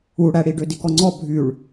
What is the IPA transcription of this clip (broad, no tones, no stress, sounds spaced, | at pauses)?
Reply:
u ɽ æ ɽ i ɖ ø d i k ɔ ŋ͡ǀ ɔ bʱ y ɭ